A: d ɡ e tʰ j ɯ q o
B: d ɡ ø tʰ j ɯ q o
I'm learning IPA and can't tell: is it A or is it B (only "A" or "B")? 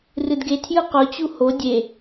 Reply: A